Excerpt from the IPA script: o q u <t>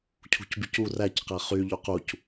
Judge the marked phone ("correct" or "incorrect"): incorrect